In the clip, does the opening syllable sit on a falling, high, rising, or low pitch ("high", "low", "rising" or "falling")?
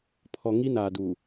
low